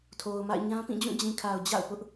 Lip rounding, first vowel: rounded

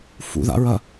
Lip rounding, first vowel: rounded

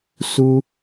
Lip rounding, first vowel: rounded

